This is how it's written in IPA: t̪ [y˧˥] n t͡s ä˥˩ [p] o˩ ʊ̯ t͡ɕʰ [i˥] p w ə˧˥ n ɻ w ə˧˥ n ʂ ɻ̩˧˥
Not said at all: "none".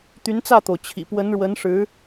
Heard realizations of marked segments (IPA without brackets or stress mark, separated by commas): y˧˥, t̪, ḭ˨˩